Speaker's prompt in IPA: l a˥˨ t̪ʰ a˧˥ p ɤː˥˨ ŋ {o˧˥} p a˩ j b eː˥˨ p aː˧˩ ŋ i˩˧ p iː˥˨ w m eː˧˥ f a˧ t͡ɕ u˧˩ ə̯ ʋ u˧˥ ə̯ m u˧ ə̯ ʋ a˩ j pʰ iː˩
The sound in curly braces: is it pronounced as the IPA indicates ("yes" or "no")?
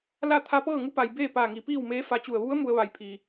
no